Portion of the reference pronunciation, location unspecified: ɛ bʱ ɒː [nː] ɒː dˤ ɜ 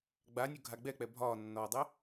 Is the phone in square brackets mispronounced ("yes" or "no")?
no